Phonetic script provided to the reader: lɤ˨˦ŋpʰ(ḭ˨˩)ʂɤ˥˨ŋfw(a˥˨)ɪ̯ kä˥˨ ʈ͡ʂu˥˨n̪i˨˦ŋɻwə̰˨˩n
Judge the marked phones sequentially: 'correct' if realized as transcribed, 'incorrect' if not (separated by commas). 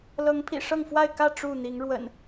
correct, correct